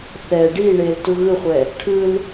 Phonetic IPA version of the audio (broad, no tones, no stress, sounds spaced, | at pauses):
θ ɛ ɖ i ɳ e l t u ɣ ɯ χʷ ɛ | ʈʰ ɯ l